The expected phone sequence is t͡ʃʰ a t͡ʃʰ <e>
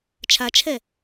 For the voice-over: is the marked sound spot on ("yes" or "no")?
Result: no